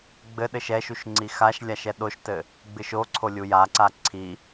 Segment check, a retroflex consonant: absent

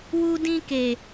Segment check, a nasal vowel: present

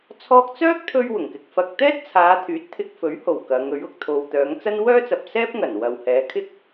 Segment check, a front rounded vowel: present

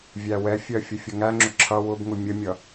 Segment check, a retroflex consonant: absent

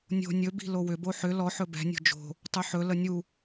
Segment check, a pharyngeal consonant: present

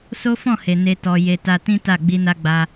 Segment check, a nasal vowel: present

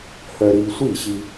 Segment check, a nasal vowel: absent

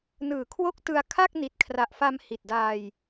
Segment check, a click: absent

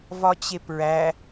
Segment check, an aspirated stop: absent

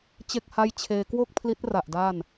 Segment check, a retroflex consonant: absent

